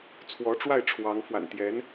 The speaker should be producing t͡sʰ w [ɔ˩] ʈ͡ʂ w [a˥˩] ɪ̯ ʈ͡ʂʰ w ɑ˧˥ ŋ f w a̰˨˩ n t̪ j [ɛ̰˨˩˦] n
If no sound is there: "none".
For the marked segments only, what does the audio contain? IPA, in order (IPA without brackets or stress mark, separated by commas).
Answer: ɔ˧˥, a˥˩, ɛ˧˥